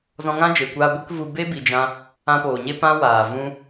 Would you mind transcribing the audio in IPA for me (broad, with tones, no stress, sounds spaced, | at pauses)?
z ɔ̃˧ ŋ ã˦ d͡ʒ e˨ kʷ aː˧ ɡʷ e˦ k v u˧ b e˦ b i˧ d͡ʒ ã˦ | ã˧ p oː˨ ɲ e˦ p ã˦ w aː˨ v ũ˧